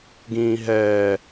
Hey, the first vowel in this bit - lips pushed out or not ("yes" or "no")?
no